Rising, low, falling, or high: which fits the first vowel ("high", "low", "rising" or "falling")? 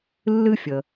high